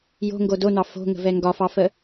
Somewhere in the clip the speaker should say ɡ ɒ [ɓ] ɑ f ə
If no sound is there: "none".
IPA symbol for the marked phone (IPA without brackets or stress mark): f